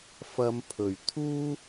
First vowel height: low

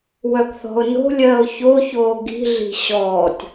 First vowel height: mid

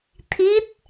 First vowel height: high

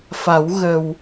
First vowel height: low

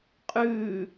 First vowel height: high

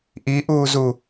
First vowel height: high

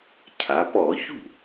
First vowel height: low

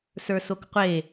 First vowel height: mid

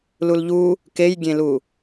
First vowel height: high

